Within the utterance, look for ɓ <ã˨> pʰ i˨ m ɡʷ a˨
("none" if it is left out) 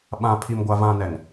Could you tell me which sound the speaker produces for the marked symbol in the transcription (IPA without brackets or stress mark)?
ã˨